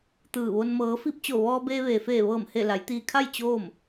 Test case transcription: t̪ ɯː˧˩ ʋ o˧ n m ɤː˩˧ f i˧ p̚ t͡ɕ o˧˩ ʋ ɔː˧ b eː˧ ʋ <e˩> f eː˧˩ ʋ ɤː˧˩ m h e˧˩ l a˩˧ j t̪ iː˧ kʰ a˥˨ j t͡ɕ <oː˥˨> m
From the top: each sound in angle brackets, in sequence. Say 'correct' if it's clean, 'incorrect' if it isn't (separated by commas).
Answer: incorrect, correct